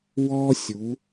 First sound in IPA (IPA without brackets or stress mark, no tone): w